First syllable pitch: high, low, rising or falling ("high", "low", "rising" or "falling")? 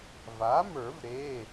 rising